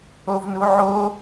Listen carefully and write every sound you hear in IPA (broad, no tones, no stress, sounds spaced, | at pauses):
o v n u ʕ o